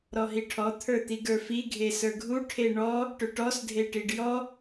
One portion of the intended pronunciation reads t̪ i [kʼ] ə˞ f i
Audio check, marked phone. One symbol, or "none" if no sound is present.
ɡ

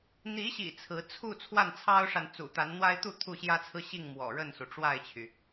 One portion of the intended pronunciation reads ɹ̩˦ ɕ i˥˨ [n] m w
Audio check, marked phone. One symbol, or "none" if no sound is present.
ŋ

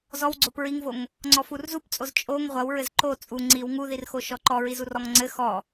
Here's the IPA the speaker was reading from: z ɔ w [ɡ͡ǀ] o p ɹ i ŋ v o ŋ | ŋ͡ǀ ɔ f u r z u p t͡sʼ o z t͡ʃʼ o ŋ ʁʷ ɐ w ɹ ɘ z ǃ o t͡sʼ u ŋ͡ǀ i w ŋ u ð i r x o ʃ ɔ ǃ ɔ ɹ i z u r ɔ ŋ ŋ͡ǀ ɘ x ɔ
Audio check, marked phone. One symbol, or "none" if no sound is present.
ɡ͡ǀ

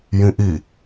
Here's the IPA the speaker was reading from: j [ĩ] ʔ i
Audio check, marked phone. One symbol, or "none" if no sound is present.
ĩ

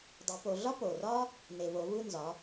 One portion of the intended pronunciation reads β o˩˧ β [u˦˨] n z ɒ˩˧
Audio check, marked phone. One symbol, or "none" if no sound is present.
u˦˨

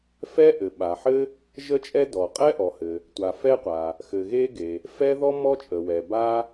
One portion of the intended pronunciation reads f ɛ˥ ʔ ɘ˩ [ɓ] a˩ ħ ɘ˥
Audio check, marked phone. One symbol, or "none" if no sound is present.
ɓ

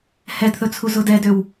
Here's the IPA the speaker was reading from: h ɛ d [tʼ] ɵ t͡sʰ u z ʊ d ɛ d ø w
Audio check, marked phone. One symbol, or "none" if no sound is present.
θ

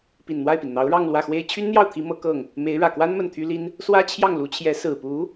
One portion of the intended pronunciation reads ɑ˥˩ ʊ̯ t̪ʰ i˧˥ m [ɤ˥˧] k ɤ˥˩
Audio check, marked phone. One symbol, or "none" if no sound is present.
ɤ˧˥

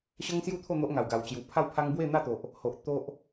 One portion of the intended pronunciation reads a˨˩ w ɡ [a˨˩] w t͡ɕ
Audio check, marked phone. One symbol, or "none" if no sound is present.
a˨˩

